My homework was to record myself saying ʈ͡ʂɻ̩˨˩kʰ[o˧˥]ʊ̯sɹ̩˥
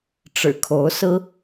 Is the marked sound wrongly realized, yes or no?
no